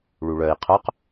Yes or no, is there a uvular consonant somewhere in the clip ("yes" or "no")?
yes